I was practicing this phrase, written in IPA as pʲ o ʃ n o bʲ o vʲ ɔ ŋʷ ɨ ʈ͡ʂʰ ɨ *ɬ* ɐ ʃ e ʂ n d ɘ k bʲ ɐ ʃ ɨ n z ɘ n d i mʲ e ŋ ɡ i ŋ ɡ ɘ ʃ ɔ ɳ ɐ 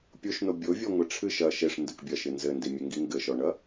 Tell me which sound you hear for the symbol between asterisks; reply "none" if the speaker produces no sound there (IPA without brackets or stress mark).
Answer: ʃ